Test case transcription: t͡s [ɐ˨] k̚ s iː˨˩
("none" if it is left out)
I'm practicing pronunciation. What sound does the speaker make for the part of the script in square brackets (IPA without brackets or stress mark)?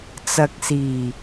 ɐ˨